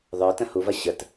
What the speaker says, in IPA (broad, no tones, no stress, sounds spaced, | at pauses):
ðˤ ə˞ t ə̃ h u v ɐ ɕ ə t